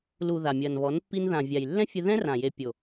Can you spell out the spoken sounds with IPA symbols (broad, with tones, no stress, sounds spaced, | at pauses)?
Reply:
l u˨ ð a˨ mʲ ɐː˨ n β ɔ˨˦ n pː i˧ n ð ã˨ vʲ a˨ j lː ɛ̃˦ fʲ ɘ˧ ð ɛ̃˦ r ã˨ j e˨ pʲ o˨